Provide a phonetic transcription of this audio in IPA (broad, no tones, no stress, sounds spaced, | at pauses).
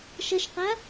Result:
ʃ ɐ ʃ q a